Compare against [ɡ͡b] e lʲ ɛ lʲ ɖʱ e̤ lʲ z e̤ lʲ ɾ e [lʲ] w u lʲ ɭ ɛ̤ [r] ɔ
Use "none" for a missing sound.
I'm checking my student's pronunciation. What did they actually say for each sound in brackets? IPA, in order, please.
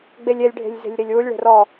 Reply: ɡ͡b, lʲ, r

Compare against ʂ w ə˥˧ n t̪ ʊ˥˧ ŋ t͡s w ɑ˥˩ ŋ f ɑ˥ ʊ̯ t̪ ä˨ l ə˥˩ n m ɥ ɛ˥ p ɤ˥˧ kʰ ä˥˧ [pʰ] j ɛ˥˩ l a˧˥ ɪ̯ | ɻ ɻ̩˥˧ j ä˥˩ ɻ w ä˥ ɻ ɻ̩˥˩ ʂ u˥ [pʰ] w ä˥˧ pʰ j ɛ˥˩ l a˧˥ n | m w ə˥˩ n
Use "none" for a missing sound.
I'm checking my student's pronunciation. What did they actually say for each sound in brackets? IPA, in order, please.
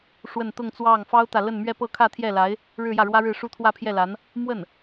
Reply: t̪ʰ, t̪ʰ

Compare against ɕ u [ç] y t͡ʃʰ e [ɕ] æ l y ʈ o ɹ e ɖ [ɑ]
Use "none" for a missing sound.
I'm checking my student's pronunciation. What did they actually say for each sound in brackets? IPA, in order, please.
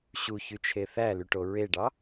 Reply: ç, θ, ɑ

